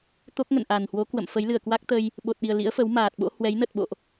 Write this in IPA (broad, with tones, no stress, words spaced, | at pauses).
t̪o˦˥k̚ŋə̰˧˨n ʔa˨˩nhwo˨˦ kwə̰˧˨m fə˨˦jlɨ˧˩ə̯kwa˦˥k̚t̪ə˧j | ɓo˨˩t̚ɗi˨˩ə̯ lḭ˧˥ə̯ fə˨˦wmaː˨˩t̚ɓo̰˧˥ hwɛ˨˦jnə˨˩t̚ɓo̰˧˨ʔ